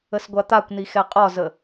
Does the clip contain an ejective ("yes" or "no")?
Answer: yes